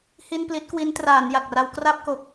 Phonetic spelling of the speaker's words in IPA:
h i˥˩ n p l i˦˥ t̚ k w i˦˥ n t r aː˩˦ n j a˨˩ k̚ r a˧ w k r a˥˩ p̚ k o˨˩ k̚

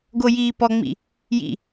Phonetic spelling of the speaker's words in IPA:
ɡ o j iː p ɔ ŋ͡m ḭ | j ḭ

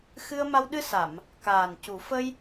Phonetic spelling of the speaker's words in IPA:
x ɨ˧ ə̯ m a˧ w ɗ ɨ˧ s a˨˩˨ m | k aː˨˩ n c u˨˩˦ f ə˧ j

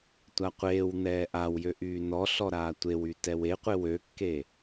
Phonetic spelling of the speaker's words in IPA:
tʷ a qʷ eː w n̪ ɛː ʔ a w j ø ʔ yː n ɔ ɬ ɔ ɾ aː tʷ e w y t ɛ w e qʷ e w ø kː e

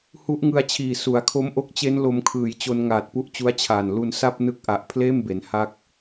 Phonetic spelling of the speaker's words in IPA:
h u˦˥ ʔ ŋ ɯ˧ a̯ t͡ɕʰ iː˨˩ s u˩˦ a̯ kʰ o˦˥ m ʔ o˦˥ k̚ t͡ɕ e˦˥ n l o˧ m kʰ ɯː˩˦ j t͡ɕ o˧ n ŋ aː˨˩ t̚ p u˦˥ ʔ t͡ɕ u˦˥ a̯ t͡ɕʰ aː˨˩ n l u˧ n s a˥˩ p̚ n ɯ˦˥ k̚ ʔ a˨˩ ʔ pʰ l eː˥˩ m b e˩˦ n h a˦˥ k̚

